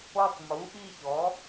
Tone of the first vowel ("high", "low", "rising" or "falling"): falling